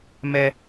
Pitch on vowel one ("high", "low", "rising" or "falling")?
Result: high